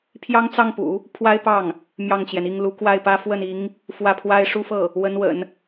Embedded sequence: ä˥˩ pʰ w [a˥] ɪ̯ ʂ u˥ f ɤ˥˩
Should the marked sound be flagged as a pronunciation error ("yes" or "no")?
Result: no